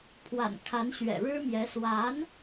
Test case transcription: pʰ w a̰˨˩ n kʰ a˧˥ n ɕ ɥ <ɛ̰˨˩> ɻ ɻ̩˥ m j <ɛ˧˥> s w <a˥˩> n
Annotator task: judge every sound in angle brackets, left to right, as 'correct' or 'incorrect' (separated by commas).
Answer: correct, correct, incorrect